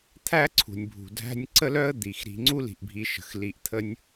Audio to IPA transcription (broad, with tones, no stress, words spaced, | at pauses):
t̪ʰæ˥ǀʰṳ˩nʲbʱṳ˩ dʱæ̤˦nʲǀə˥lœ˥ə̯d̪i˩x ɾi̤˨ŋ͡ǀu˥li̤˩ʔ bʱi˨ ʃə̤˩x li˨ʔt̪ʰə˦nʲ